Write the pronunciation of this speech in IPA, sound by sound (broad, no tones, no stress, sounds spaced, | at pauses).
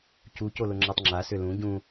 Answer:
c u c o l ʊ ŋ͡ǁ a tˤ ŋ͡ǁ a s ʏ l ũ ɟ ũ